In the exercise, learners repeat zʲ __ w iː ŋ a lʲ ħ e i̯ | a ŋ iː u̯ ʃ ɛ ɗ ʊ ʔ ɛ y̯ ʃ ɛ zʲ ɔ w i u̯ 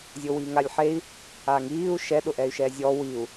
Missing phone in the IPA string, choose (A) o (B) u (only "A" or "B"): A